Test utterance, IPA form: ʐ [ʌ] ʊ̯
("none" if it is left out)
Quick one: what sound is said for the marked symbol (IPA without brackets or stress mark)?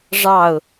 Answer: ɑ